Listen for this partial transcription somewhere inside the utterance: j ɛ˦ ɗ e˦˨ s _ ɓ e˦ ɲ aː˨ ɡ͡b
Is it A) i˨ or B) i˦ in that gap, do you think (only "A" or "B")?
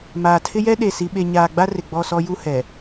B